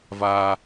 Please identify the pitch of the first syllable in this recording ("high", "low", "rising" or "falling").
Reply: high